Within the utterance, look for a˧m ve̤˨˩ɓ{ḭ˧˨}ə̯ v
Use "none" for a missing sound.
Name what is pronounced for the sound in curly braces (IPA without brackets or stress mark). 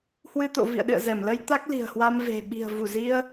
i̤˨˩